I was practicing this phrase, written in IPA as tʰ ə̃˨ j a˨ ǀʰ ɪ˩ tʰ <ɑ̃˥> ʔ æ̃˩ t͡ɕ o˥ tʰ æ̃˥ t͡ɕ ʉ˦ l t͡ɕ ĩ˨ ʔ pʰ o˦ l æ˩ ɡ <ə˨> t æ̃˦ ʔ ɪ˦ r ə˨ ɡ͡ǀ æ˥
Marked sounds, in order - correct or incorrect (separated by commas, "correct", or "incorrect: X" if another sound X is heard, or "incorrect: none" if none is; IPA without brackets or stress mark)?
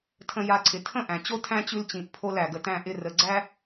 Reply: incorrect: ə̃˥, correct